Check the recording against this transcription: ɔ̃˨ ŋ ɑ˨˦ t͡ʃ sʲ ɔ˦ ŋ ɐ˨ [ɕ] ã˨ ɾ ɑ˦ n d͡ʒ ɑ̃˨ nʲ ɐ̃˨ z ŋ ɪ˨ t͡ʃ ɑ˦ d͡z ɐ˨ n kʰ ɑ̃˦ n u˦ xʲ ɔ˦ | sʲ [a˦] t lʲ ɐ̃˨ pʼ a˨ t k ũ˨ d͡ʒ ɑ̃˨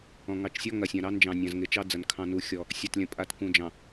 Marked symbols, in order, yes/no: no, no

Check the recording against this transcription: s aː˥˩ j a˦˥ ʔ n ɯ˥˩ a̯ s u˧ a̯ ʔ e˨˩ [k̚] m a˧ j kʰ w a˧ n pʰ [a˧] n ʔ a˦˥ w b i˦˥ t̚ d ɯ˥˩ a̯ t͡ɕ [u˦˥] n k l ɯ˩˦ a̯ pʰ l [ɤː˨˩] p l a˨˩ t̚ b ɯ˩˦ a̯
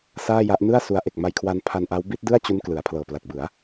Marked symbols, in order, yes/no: yes, yes, yes, yes

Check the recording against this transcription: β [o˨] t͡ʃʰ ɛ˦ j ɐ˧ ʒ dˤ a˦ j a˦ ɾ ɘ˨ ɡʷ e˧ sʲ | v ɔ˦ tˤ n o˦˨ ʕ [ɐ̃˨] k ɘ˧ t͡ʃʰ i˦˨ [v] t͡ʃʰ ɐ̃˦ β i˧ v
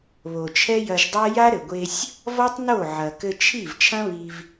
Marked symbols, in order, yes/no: yes, no, yes

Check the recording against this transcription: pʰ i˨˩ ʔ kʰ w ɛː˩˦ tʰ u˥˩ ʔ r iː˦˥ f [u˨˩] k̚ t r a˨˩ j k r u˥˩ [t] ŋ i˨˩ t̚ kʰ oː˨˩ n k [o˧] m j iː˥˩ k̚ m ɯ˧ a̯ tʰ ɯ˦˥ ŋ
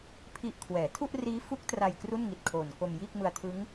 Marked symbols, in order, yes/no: no, no, yes

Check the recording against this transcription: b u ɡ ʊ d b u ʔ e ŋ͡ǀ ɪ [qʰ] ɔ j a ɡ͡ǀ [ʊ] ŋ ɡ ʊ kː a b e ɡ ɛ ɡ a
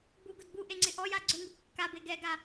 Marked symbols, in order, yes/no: no, yes

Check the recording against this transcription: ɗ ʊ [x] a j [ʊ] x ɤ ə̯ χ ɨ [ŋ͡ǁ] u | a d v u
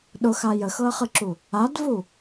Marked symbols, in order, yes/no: yes, no, no

